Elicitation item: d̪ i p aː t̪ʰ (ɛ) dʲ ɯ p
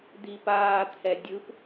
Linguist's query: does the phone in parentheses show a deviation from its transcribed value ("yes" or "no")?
no